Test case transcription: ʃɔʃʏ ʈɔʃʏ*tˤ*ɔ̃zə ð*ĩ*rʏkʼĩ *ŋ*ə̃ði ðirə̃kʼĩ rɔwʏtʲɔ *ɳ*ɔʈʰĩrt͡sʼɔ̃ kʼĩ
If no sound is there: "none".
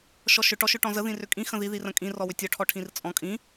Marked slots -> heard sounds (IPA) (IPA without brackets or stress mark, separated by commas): ʈ, ĩ, x, ʈʰ